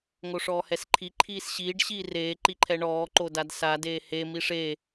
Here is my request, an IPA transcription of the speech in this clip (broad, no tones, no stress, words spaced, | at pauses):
ŋoʂɔːhɛsǃʰi ǃʰiːsɕiːɖ ɕiːreː ǃiǃʰɛɳɔː ǃodadsa deːhe miʂe